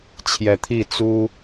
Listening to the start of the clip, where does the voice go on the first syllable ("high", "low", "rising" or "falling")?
low